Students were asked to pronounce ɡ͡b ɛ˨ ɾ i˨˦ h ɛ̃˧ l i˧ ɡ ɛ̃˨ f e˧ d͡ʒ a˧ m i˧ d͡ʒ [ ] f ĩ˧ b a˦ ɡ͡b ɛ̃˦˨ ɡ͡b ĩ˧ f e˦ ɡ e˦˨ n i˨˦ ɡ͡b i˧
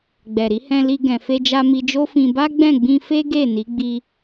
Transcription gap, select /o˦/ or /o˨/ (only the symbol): o˦